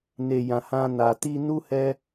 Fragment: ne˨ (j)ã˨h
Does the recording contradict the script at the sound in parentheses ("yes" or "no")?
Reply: no